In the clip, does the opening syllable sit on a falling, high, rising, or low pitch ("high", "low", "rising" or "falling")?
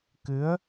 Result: rising